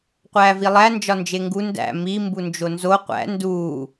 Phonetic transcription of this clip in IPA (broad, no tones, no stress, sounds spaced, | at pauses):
qʷ æː v i lˠ æ n d͡ʒ ɒ n d͡ʒ e ŋ ɡ u n d æ̰ m i m b u n d͡ʒ o n z o qʷ æ̰ n d uː